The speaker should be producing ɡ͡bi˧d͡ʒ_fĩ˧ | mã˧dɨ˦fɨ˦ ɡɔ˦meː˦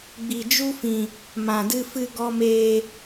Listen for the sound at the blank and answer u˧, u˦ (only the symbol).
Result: u˦